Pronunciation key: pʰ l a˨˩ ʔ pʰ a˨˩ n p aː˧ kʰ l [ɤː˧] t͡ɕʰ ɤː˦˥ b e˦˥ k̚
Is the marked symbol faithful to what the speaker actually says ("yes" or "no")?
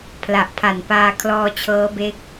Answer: no